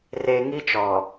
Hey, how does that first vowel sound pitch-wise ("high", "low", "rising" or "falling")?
low